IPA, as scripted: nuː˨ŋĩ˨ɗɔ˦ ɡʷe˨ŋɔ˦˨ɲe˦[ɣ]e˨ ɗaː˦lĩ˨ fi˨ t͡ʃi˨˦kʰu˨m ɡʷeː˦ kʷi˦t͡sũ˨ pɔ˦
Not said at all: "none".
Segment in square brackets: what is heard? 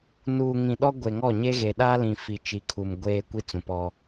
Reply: ɣ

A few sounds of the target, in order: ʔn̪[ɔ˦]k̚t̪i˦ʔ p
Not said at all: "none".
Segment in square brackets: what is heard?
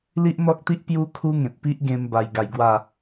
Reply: ɔ˦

